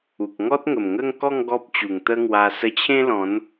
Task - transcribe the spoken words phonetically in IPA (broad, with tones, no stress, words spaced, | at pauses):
u˨k̚ ŋɔ˦t̚ŋə˨˩mŋə˥˧ŋ kɔ˥˧ŋ ɡɔ˦p̚t͡ɕu˨˩ŋt̪ə˦ŋwa˧ sə˧t͡ɕʰẽ˦lɔ̃˨˦n